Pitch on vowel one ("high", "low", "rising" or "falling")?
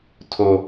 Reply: low